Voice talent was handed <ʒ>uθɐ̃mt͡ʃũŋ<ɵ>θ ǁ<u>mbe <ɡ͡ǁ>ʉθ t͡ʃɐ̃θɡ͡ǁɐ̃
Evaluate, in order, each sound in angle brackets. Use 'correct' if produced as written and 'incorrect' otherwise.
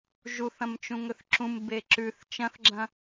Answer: correct, correct, incorrect: ũ, incorrect: ǁ

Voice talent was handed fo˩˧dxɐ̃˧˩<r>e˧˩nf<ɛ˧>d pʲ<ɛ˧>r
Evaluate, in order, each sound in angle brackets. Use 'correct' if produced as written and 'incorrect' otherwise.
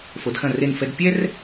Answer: correct, correct, incorrect: ɛ˥

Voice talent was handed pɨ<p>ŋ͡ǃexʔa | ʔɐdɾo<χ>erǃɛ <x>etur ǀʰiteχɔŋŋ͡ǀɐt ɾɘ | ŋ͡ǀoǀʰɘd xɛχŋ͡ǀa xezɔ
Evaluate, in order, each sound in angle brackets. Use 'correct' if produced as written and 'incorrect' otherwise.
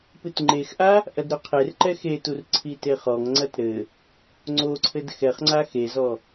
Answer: incorrect: t, incorrect: qʰ, correct

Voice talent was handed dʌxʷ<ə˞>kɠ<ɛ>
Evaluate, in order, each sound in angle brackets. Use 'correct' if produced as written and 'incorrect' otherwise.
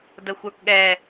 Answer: correct, correct

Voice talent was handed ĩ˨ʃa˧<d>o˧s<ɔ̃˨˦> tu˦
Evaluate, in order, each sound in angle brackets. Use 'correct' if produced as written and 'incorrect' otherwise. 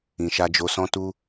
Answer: incorrect: d͡ʒ, incorrect: ɔ̃˦

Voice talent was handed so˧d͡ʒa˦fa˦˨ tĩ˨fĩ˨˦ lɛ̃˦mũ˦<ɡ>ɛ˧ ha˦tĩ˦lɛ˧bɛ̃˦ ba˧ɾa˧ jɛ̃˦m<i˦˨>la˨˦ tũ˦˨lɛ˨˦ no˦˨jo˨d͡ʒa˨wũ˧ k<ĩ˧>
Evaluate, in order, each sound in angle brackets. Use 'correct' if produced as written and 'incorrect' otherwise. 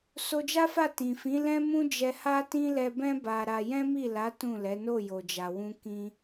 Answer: incorrect: d͡ʒ, correct, correct

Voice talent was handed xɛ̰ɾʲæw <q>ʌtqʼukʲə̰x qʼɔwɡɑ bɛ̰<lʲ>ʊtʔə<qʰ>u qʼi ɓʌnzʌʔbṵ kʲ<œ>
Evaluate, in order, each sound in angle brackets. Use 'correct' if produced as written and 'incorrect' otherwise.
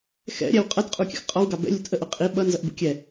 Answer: incorrect: qʼ, correct, incorrect: ʔ, incorrect: ɛ

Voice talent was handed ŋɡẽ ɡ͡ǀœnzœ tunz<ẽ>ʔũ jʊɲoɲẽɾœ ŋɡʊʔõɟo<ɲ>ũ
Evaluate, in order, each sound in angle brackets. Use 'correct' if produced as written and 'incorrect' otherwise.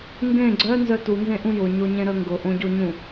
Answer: correct, correct

